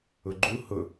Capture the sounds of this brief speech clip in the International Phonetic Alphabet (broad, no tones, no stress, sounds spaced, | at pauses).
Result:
ʊ ɡ͡ǃ u h ʊ